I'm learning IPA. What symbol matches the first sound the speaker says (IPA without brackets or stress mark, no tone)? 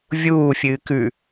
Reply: vʲ